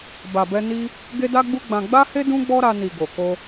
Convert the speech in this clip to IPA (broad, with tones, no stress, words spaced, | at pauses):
ba˨bɛ˧ ni˦ | ɡe˦da˦ɡ͡bu˦ɡ͡bã˧ ɡ͡ba˦he˦ dũ˦ɡ͡bɔ˦ɾa˧ni˨ ɡo˨ko˧